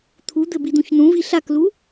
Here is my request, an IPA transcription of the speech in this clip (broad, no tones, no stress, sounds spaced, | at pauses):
t̪ʰ u d̪ ɘ b i d̪ ũ ç n ũ v i ɬ a k l u